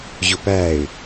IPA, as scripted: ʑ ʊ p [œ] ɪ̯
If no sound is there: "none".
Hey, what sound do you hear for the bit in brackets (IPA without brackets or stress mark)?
æ